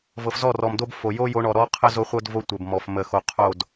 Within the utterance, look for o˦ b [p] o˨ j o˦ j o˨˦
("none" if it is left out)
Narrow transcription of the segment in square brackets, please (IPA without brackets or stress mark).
f